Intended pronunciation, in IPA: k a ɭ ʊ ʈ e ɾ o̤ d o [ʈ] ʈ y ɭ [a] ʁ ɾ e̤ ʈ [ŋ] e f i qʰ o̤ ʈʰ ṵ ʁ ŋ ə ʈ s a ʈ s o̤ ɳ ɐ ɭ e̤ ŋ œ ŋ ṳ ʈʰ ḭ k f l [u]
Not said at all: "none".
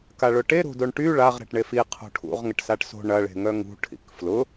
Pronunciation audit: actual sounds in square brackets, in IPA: ɳ, a, ɳ, ʊ

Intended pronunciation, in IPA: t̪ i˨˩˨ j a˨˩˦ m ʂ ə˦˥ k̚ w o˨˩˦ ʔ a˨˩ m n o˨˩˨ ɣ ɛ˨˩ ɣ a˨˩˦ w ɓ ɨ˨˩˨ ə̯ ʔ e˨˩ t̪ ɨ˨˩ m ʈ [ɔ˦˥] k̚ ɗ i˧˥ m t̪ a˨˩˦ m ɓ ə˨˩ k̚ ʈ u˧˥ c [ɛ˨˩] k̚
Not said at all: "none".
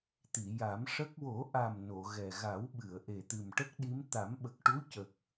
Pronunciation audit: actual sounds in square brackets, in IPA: ə˦˥, ə˨˩

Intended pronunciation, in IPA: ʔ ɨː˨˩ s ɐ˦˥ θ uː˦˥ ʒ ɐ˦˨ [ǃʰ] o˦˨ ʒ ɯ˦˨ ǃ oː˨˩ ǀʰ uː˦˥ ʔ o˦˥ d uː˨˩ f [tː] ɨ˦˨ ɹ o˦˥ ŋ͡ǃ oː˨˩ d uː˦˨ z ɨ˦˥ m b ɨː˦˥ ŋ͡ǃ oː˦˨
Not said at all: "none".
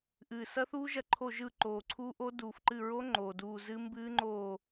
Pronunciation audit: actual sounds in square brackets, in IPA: ǃʰ, ǃ

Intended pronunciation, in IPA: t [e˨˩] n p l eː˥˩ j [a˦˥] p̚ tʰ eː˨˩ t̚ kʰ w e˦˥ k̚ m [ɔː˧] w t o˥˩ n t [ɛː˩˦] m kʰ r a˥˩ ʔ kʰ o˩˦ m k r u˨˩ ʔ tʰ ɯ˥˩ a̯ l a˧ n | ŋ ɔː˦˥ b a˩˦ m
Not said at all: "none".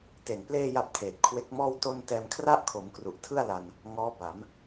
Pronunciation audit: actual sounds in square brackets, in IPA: e˨˩, a˦˥, ɔː˥˩, ɛː˧

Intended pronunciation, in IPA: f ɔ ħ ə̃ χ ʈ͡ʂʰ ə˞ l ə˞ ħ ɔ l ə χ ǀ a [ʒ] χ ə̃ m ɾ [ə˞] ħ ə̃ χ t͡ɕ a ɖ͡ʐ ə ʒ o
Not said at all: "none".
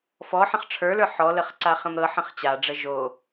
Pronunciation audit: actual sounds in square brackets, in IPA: none, ɤ

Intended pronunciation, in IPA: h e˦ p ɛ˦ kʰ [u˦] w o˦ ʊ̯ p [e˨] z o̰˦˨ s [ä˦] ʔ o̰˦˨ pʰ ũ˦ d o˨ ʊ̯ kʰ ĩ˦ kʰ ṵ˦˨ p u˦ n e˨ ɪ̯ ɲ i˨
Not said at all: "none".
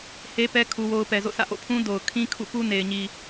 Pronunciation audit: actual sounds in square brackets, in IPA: u˦, ɛ˨, ä̰˦˨

